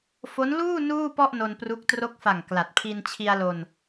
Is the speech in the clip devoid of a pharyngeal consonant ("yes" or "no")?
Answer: yes